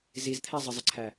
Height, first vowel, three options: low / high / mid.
high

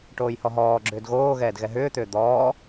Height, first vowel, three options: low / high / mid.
mid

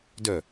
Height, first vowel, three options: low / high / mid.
mid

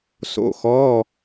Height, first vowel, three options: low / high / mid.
mid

